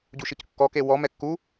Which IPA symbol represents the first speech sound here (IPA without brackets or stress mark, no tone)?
ɟ